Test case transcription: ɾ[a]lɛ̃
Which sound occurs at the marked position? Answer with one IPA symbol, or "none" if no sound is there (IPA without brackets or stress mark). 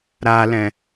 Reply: a